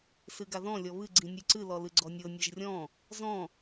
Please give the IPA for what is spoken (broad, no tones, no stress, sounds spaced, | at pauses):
s ɨ ɡ a ð ɔ̃ lʲ ɔ β ɨ ɡ͡ǀ ĩ nʲ ɨ ǀ ɨ l ɔ l ɨ ɡ͡ǀ ɔ nʲ ɤ nʲ ɤ ʒ rʲ ɔ̃ | z ɔ̃